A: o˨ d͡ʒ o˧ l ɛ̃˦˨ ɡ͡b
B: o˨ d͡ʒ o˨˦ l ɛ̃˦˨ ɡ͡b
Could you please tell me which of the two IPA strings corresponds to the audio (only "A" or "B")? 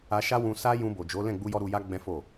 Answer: B